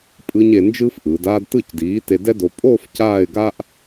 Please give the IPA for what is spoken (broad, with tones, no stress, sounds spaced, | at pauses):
pʼ ɯ˧ ɲ e˧ n d͡ʒ ɯː˥ f ʔ ɯː˩˧ d aː˧ d t ɯ˧˩ c d iː˩˧ t e˧ d ɛ˥ d o˧ pʼ oː˥˧ f c aː˥˧ ɪ̯ ɡ a˥ ʔ